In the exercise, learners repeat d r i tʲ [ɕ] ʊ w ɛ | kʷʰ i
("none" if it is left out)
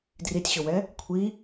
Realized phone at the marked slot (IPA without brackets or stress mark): ɕ